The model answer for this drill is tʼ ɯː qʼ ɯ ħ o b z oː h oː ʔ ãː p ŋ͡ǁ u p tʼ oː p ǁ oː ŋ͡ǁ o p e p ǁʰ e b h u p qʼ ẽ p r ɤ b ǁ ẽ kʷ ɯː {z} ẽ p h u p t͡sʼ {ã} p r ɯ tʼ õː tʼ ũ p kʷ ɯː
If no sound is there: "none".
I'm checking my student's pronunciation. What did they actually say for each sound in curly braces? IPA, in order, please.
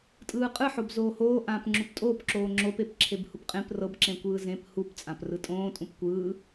z, ã

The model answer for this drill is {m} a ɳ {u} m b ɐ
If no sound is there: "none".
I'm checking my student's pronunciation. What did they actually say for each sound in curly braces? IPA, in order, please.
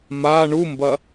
m, u

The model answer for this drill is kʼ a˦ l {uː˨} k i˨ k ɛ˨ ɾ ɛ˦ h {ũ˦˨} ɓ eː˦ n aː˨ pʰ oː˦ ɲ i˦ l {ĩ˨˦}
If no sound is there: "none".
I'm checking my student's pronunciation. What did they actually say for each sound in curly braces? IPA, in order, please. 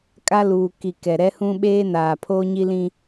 uː˨, ũ˦, ĩ˦

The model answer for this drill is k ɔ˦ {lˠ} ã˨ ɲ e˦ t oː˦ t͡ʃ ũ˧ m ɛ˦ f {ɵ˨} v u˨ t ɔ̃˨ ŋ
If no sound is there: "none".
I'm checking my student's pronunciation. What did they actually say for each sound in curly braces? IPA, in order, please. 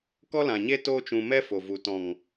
l, o˨

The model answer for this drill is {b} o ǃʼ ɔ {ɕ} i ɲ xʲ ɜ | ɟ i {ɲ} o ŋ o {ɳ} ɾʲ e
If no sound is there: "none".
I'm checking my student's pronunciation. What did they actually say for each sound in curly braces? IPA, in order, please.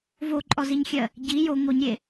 v, z, j, ɲ

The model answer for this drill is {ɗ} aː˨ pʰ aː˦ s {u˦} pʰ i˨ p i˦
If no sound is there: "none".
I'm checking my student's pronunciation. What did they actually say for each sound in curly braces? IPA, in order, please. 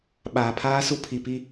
ɓ, u˦

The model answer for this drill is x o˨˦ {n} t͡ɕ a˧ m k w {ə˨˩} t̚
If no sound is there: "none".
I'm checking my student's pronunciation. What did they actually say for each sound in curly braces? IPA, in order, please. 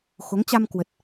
ŋ, ə˨˩

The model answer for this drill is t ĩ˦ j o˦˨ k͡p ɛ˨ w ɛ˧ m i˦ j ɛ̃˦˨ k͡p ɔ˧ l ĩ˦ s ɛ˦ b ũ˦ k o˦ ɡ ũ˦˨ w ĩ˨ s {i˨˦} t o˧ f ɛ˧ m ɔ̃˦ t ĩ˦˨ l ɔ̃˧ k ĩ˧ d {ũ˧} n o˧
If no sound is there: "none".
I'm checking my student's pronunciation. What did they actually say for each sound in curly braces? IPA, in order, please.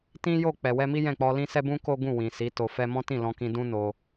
i˨˦, ũ˦

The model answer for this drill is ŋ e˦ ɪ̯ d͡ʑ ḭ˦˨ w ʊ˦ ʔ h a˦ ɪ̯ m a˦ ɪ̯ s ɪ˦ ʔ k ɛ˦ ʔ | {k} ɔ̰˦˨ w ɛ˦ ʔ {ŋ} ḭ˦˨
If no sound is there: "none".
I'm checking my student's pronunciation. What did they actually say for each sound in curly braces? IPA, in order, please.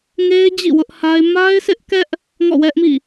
ŋ, m

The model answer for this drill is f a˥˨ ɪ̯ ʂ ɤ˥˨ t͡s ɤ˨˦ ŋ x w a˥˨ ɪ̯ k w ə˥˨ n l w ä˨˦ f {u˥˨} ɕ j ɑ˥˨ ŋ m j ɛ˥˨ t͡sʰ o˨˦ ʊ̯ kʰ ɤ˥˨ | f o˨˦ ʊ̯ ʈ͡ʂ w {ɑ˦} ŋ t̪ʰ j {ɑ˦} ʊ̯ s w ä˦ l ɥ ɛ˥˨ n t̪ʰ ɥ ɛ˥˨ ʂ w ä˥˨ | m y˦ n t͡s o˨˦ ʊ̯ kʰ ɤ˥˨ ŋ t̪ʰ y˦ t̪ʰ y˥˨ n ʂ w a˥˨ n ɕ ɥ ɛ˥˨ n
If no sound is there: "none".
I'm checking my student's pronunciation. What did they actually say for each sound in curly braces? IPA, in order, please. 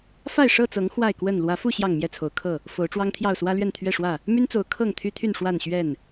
u˥˨, ɑ˦, ɑ˥˨

